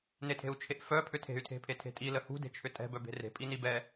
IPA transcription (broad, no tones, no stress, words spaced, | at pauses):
netʰe̤u̯t͡ʃʰeʔfœ pʰʏtʰe̤y̯tʰe̤ pʰetʰe̤tʼi ləhṳde̤ t͡ʃʰʏtʼɛ̤ bœbe̤re̤pʼi nibɛ